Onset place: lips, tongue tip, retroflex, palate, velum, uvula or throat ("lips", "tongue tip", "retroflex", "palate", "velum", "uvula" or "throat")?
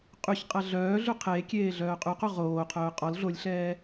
uvula